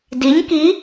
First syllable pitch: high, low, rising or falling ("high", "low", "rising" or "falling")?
rising